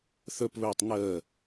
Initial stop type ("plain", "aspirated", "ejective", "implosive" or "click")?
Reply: plain